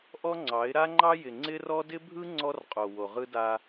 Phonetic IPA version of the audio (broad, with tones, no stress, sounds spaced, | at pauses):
ʔ ɔ˦ ŋ͡ǀ ɑ˨˦ ɪ̯ ɾ a˦ ŋ͡ǃ ɑ˦ j ɪ˨ ŋ͡ǀ ɪ˦ r ɔ˦ d ɪ˦ bʱ ɯ˦ ŋ͡ǀ ɔ˦ r qʼ o˨ w o˨ ʁ ɯ˦ d a˦